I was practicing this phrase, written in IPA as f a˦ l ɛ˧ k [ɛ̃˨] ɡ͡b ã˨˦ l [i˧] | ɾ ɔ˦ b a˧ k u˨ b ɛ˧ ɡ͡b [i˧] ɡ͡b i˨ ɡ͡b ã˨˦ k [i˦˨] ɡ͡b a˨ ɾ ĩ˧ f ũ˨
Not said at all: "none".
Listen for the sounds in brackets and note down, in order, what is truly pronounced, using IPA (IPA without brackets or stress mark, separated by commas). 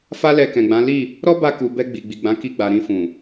ɛ̃˨, i˦˨, i˨, i˧